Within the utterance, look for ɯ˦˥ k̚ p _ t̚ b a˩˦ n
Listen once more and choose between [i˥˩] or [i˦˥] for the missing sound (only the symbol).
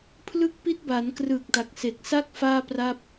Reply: i˦˥